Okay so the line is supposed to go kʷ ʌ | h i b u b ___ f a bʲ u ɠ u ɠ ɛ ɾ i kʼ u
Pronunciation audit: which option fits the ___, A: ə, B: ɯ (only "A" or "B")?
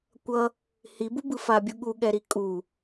B